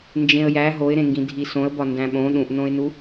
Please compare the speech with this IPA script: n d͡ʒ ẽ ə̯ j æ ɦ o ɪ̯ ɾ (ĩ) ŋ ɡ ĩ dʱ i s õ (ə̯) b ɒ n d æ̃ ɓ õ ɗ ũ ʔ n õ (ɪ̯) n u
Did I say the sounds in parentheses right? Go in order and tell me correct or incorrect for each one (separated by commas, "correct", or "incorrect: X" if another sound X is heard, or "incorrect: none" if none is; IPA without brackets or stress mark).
incorrect: ẽ, correct, correct